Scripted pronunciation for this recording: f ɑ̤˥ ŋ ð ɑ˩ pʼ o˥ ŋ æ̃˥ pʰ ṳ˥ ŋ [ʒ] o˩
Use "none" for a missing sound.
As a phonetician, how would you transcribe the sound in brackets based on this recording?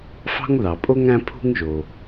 ʒ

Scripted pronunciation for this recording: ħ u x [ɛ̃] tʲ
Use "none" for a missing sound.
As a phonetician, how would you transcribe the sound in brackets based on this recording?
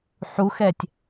ɛ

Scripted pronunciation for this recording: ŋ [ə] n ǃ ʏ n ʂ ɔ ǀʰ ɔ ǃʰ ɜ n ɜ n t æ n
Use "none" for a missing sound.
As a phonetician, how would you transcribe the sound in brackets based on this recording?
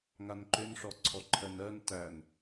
a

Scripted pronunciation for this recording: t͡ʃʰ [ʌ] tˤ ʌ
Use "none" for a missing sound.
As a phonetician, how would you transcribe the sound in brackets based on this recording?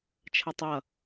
ʌ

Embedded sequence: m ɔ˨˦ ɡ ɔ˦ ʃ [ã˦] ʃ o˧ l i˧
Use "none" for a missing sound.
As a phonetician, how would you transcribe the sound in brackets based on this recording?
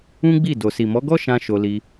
ã˧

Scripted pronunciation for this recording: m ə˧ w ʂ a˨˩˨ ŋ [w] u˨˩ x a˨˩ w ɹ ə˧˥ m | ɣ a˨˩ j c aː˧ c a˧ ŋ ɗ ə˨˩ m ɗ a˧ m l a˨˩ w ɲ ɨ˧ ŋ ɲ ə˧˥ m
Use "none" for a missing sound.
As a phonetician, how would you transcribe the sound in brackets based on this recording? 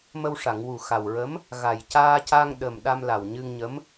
w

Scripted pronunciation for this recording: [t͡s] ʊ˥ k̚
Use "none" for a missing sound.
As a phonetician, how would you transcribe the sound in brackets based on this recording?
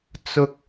t͡s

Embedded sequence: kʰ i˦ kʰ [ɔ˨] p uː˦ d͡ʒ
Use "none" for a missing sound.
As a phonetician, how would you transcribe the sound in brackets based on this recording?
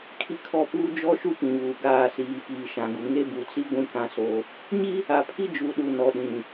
ɔ˦˨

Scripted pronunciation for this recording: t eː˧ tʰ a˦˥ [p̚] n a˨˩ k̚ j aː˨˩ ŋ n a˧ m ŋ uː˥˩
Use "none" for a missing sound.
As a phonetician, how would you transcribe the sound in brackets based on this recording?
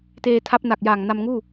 p̚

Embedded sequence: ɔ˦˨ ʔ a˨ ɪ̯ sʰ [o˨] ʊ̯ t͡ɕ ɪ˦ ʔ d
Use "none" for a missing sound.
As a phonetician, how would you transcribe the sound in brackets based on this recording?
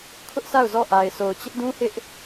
o˨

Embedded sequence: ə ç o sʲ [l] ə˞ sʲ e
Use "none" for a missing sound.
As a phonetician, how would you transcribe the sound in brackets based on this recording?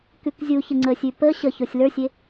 l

